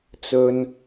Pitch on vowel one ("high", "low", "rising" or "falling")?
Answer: low